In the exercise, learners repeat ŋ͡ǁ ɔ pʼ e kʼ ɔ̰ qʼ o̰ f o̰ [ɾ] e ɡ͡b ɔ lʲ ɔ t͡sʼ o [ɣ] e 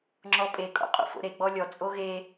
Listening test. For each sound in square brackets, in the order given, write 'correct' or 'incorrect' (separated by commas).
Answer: correct, correct